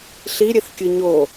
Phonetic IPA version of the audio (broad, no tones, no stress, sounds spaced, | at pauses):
ɬ i ɾʲ e θ kʲ ɯ ɲ o